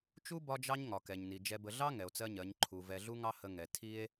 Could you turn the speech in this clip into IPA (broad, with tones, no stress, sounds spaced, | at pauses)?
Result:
t͡ʃ u˦ b ɒ˦ d͡ʒ ɑ˦ ɲ ŋ ɒ˨ k ɛ˨ ɲ n i˨ d͡ʒ ɛ˨ b ə˨ ɮ ɑ˦ ŋ ɛ˨ o̯ t͡s ɜ˦ ɲ ɜ˨˦ ɲ ǃʰ u˨ v ɛ˨ ɮ u˦ ŋ ɑ˦ h ə˨ ŋ ɛ˨ tʰ i˦ e̯